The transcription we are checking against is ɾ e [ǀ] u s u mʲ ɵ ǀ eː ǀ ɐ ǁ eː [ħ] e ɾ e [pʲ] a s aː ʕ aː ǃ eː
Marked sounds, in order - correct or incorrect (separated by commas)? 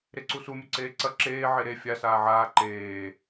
correct, incorrect, incorrect